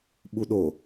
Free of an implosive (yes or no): no